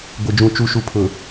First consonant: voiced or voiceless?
voiced